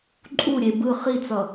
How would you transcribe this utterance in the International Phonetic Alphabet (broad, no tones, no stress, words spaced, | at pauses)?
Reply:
ǃʼuɾʲe bɯ χit͡sʌ